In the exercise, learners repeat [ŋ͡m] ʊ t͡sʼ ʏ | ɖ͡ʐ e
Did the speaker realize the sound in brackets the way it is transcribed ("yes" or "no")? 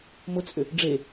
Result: no